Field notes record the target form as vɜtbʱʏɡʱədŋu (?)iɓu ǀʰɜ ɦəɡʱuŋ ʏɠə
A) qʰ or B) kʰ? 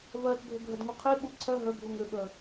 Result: A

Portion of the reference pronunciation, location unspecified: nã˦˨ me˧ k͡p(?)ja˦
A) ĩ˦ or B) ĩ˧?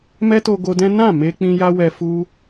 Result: A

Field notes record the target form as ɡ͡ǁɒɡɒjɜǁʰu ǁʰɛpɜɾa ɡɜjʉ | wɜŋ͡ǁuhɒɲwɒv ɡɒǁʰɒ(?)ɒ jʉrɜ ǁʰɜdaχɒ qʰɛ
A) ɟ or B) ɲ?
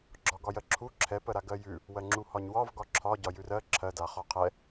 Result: A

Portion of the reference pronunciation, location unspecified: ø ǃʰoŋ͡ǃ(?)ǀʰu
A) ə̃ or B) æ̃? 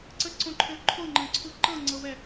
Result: A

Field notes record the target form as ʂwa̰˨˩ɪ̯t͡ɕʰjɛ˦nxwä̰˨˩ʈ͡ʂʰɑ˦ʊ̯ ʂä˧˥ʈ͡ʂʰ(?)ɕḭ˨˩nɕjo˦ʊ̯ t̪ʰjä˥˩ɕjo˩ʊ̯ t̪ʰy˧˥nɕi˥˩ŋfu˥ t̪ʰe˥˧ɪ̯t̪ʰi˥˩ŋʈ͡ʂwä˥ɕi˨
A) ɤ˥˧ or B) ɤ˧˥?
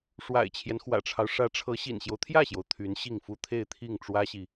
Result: B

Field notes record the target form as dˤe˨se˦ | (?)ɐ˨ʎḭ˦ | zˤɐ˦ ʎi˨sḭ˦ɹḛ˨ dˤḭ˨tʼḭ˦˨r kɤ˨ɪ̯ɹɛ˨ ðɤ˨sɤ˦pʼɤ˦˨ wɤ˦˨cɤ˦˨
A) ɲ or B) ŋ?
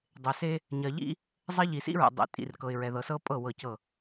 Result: A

